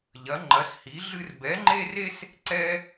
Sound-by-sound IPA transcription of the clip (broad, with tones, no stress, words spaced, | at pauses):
ʎɐ˩˥ŋ͡ǃɐ˩˥shi˩˥ ɮɨ˦r bɛ˩˥ŋ͡ǃe˦re˦s | ǀɛ˦